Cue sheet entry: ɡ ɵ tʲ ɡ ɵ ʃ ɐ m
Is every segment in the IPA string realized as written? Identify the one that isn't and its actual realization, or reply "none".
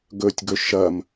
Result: none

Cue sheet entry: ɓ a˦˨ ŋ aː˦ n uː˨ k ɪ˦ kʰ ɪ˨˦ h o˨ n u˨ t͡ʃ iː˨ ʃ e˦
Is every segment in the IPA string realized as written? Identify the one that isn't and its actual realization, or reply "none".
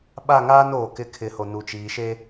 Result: uː˨ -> oː˨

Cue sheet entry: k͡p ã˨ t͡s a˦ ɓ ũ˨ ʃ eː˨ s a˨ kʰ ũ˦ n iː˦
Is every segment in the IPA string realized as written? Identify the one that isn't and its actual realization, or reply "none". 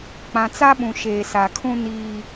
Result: none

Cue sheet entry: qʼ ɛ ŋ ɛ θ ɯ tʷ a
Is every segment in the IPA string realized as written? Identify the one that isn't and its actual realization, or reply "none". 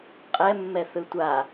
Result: ŋ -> mː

